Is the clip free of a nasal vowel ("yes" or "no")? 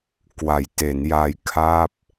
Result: yes